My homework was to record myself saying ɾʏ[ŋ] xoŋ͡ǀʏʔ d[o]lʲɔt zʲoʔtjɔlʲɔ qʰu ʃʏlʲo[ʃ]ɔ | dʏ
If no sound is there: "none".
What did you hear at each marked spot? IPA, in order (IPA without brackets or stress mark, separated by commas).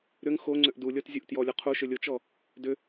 ŋ, u, t͡ʃ